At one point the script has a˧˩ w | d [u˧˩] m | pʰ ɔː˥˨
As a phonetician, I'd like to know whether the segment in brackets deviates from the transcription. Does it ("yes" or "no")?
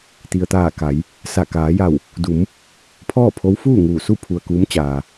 yes